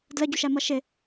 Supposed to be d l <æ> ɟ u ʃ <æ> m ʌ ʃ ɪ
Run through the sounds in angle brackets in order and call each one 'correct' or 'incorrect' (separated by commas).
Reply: incorrect, correct